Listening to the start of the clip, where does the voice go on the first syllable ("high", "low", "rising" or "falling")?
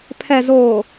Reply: low